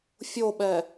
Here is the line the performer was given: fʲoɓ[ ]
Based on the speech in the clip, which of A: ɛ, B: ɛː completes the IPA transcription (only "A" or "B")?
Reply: A